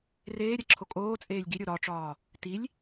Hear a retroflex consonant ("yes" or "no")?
yes